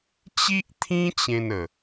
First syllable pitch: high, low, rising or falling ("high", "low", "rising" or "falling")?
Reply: high